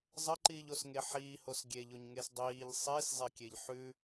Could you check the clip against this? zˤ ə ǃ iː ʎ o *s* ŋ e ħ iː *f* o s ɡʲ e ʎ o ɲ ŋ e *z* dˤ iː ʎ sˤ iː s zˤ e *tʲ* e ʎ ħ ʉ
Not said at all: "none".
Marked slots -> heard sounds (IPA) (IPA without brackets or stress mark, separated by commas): s, h, s, kʲ